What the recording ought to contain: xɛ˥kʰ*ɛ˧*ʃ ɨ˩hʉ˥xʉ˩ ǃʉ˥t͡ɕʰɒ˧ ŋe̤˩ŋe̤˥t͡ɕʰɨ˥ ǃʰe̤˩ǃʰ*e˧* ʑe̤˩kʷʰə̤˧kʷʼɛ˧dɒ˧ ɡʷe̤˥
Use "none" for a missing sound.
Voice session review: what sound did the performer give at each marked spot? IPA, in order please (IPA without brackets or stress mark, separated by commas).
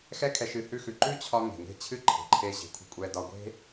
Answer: ɛ˧, e˧